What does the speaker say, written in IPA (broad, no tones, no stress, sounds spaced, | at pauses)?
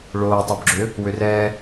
ɭ oː tˤ o b ɡ͡ǁ ø | w ø r ɛː